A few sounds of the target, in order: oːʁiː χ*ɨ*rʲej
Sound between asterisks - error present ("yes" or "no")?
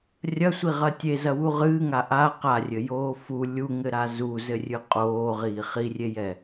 yes